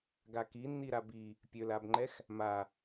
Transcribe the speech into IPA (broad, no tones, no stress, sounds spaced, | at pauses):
ɡ a k i nː i ɾ a b i | pʲ ø l a b ŋ͡ǃ ɛ x | m a